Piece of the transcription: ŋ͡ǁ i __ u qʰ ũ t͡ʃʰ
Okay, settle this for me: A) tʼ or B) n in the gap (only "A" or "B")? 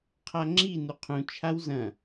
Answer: B